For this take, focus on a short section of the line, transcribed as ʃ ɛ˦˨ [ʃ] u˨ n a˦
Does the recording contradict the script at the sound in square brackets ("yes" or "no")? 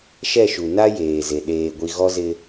no